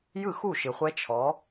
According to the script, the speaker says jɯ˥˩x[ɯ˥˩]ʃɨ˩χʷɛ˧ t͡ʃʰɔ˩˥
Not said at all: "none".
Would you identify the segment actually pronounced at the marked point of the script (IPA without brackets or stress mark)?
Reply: u˥˩